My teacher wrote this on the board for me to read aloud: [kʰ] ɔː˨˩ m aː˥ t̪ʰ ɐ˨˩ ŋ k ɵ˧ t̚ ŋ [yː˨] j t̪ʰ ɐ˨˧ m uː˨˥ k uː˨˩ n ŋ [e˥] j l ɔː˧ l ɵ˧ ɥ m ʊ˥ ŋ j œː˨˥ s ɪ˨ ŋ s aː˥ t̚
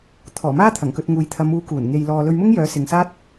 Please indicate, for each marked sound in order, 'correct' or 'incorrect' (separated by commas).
incorrect, incorrect, incorrect